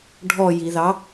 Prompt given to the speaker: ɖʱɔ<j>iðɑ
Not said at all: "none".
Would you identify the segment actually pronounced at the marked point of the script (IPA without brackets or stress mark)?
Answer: j